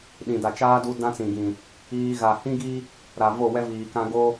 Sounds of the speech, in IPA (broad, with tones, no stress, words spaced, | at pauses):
ɗĩ˨da˨t͡ʃaː˦ du˦ dã˦t͡sĩ˨ɡĩ˨ | iː˦ ɣaː˨hĩ˦ɡi˦ | ɾa˨vo˦˨wɛ˦viː˨ kã˦ ɡo˦